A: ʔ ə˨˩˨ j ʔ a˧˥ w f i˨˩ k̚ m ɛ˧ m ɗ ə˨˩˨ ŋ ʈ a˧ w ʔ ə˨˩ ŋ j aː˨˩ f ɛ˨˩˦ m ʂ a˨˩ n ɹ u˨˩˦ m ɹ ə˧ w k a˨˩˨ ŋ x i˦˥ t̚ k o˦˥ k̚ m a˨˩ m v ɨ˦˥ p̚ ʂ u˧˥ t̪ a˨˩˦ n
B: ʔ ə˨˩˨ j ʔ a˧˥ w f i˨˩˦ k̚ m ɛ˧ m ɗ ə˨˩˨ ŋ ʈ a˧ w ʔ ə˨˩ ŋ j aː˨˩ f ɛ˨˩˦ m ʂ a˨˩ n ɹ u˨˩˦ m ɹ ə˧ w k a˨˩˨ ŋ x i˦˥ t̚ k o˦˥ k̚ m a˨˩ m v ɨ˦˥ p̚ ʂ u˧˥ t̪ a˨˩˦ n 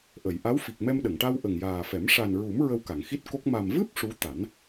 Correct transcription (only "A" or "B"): A